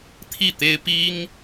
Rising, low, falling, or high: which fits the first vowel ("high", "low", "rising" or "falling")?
falling